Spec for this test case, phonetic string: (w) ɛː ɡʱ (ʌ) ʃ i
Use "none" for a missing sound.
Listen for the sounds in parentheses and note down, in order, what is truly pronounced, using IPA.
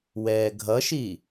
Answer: w, ʌ

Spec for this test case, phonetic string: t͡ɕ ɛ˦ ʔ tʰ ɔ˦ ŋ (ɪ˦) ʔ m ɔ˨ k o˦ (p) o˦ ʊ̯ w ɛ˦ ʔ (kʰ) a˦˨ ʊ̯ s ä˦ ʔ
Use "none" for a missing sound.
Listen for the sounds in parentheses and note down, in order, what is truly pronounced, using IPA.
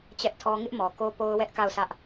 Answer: ɪ˦, p, k

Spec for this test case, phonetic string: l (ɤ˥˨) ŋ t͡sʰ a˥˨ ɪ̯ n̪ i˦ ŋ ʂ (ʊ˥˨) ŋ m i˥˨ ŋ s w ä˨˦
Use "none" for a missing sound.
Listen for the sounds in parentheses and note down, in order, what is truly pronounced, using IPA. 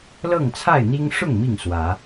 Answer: ɤ˥˨, ʊ˥˨

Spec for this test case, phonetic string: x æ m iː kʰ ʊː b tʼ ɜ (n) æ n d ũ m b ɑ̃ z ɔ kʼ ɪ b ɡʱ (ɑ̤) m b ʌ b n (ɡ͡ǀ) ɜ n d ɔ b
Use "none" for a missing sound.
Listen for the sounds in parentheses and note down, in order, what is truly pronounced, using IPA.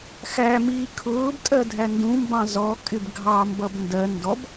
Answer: dʱ, ɑ, d

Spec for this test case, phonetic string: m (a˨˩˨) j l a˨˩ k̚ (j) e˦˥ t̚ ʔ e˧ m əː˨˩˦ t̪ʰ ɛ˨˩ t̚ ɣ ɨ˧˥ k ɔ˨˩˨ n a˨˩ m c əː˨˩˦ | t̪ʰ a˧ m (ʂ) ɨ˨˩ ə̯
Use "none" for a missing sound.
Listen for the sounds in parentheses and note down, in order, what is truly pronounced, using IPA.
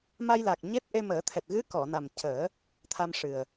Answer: a˧, ɲ, ʂ

